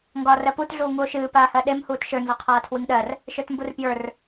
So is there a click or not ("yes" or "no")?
no